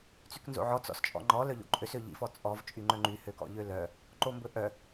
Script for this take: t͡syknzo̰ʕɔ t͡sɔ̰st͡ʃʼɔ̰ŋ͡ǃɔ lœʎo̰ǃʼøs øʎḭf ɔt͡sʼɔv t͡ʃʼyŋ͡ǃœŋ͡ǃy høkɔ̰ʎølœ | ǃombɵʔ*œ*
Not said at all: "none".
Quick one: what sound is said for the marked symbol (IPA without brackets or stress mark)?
œ